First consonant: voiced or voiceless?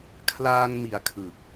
voiceless